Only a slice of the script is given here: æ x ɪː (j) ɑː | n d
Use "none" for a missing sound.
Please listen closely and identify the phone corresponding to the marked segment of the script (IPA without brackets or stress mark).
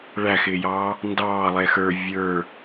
j